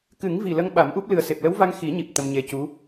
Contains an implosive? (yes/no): yes